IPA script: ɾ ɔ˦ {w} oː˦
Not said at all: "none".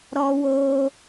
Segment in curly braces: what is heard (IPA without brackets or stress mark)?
w